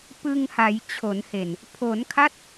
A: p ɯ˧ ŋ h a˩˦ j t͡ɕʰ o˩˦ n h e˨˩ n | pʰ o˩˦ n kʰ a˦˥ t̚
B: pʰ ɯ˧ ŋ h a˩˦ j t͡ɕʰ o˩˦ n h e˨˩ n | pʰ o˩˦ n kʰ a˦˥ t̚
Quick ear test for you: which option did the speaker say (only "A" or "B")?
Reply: A